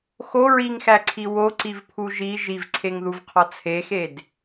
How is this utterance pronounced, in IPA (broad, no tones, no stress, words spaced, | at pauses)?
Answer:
xo ɹiŋxæǀʰi woǀivpʰu ʒi ʒivǀʰeŋðuvqʰɒ t͡sʰexed